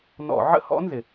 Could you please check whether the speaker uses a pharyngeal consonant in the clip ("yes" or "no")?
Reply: yes